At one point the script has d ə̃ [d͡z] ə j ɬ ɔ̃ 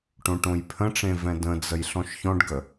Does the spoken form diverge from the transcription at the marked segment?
no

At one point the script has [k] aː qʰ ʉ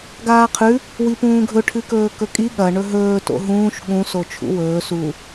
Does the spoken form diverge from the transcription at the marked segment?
yes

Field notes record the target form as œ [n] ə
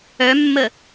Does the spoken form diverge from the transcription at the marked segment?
yes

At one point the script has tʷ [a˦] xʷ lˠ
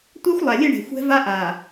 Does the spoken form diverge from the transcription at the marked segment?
no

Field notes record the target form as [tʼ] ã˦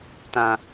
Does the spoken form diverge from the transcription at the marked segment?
yes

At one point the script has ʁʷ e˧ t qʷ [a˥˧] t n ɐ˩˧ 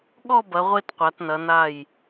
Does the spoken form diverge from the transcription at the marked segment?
yes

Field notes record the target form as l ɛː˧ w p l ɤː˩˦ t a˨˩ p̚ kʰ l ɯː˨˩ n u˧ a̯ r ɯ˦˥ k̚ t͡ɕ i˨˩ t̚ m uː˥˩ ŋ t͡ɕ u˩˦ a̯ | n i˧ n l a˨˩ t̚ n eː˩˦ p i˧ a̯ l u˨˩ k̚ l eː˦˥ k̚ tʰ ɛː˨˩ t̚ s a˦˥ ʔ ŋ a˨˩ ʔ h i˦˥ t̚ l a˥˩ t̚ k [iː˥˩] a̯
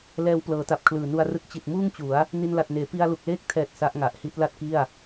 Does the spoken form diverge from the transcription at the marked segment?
yes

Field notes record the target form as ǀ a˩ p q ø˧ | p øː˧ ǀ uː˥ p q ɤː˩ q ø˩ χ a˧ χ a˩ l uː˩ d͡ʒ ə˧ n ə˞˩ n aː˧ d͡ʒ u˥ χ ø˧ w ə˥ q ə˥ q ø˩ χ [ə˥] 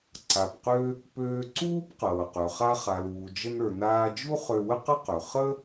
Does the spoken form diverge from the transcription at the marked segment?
no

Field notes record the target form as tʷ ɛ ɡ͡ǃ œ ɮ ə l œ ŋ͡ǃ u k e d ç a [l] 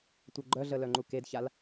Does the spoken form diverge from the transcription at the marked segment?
no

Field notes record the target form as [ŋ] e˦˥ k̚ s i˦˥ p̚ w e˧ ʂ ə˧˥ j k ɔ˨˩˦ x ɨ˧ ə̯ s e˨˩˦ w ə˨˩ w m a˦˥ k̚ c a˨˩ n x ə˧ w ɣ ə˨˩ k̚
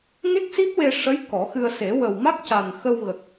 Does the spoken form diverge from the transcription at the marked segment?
no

